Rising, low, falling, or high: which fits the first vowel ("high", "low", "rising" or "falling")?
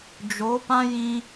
rising